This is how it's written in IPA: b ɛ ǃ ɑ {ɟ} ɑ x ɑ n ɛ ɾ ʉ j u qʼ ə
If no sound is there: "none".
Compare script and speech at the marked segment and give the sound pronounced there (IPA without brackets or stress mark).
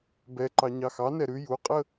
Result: ɲ